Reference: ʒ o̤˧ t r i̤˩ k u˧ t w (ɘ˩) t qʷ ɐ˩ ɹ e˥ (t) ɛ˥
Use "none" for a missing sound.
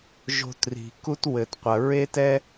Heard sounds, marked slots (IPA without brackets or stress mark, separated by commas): ɘ˩, t